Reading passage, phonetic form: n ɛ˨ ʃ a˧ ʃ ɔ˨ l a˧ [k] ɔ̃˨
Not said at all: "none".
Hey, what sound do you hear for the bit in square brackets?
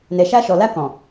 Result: k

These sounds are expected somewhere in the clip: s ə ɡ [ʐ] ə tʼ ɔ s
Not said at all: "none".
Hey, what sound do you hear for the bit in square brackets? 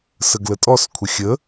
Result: l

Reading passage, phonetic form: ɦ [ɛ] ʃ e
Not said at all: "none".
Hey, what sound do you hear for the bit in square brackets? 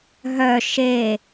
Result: œ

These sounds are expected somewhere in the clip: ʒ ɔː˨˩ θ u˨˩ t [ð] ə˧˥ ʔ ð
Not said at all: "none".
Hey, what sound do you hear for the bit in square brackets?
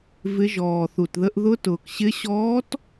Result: ð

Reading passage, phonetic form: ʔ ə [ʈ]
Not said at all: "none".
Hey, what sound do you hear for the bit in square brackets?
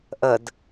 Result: d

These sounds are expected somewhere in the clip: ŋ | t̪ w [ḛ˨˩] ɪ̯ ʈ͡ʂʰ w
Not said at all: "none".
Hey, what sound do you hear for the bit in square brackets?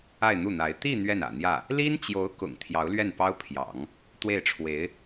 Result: e˥˩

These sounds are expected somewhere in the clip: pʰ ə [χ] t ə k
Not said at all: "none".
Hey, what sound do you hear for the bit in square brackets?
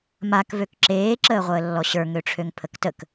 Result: k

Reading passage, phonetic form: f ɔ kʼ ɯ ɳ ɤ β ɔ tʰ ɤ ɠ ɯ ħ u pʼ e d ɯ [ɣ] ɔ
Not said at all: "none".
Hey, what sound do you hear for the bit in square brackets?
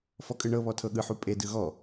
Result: ɣ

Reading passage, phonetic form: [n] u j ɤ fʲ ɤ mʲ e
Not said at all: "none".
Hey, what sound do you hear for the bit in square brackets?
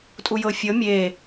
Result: tʼ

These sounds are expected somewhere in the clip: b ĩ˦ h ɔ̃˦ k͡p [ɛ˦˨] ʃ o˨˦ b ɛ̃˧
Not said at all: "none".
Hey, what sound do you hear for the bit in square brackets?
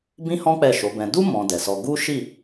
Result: ɛ˦˨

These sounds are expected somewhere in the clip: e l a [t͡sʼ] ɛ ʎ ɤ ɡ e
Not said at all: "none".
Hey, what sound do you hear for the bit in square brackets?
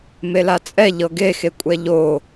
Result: t͡sʼ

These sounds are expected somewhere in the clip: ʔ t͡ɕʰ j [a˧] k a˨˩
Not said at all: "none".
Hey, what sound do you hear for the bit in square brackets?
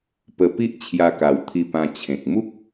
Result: a˧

